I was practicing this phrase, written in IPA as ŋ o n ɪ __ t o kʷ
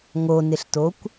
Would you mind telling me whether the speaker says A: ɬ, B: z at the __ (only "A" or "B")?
A